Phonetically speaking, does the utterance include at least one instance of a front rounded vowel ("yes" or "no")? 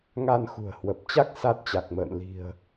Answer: no